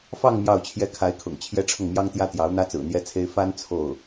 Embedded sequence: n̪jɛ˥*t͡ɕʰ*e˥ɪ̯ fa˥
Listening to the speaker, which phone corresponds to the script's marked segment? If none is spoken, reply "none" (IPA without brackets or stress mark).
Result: t͡sʰ